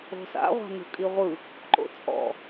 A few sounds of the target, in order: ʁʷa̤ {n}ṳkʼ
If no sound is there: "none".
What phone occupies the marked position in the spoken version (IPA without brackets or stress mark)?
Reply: n